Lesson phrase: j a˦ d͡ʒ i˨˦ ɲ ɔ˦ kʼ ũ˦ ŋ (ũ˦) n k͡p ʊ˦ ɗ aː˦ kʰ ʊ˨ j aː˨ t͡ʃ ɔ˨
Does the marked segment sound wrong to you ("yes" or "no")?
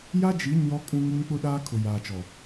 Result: yes